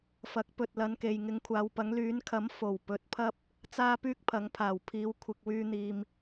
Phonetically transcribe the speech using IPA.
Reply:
f ɐ˨˥ k̚ p ɵ˨ t̚ l ɐ˨˧ n k e˨ j ŋ ɪ˨˧ ŋ kʷʰ aː˨˧ w p ɐ˨˥ ŋ l yː˨˥ n kʰ ɐ˨˥ m f o˨˩ w p ɵ˨˥ t̚ pʰ ɐ˥ p̚ | t͡s aː˥ p yː˥ k̚ pʰ ɐ˨˥ ŋ pʰ aː˨˩ w pʰ iː˨˧ w kʷʰ ɪ˨ k̚ w yː˧ n̪ iː˨ m

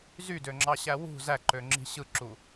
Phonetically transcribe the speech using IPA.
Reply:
z y d ø ŋ͡ǁ ɑ ɕ æ w ṳ z æ ǃ ø ŋ͡ǁ i̤ ɕ ɯ ǁ u

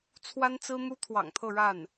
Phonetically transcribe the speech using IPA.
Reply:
t͡sʰ w a˥ n t͡s ɹ̩˥ n̪ u˥ t̪ʰ w ɑ̰˨˩ ŋ t̪ʰ ɤ˥˧ ɻ a˥˩ n

